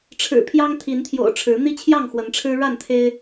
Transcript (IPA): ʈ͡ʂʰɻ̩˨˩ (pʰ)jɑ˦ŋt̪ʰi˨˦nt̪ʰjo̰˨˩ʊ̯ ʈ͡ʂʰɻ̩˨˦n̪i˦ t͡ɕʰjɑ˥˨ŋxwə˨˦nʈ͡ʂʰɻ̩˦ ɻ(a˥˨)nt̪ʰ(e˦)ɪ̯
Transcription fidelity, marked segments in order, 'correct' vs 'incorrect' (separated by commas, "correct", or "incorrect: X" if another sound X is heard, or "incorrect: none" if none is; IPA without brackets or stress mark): correct, correct, correct